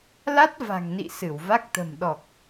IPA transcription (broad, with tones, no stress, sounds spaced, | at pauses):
l a˦˥ t̚ v a̤˨˩ ŋ n ḭ˧˨ s ɨ˧˩ w v a˦˥ k̚ t̪ ə̤˨˩ m ɗ ɔ˨˩ k̚